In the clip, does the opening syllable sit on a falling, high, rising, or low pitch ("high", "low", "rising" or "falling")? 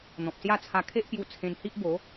low